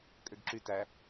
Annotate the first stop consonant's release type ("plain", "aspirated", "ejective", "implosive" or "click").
ejective